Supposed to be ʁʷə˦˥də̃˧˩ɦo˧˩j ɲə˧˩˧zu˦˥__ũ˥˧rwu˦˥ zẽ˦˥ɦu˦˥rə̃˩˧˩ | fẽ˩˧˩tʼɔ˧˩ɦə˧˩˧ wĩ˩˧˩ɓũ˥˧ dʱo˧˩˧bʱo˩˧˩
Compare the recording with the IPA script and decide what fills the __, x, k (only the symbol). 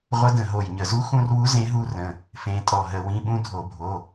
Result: x